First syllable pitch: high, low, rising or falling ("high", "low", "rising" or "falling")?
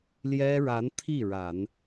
high